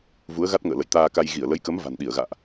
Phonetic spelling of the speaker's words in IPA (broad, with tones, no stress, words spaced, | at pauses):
vu˨˦ə̯ɣa˦˥t̚ŋə̰ː˧˨ lə̰˧˨jt̪aː˧ka˧j ɣi˧˩ə̯lə˨˦jkə˨˦m va̤˨˩nɗi˧˩ə̯ɣa̰ː˧˨ʔ